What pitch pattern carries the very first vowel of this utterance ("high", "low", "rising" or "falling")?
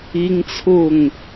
high